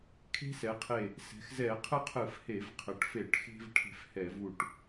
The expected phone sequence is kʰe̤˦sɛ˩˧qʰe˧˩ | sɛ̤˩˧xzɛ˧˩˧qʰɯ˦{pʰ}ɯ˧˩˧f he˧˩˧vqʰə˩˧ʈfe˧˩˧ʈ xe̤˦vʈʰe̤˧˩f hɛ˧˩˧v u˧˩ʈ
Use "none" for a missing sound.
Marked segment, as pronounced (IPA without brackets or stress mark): qʰ